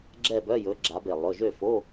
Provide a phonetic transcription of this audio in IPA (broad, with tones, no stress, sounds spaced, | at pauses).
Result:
ɡ͡ǁ ɛ˥˨ b œ˧˥˧ j ɵ˨˦ ɡ͡ǁ a˨˦ b e˧˩ lˠ ɵ˩˧˩ ʒ ø˥˨ f o˧˥˧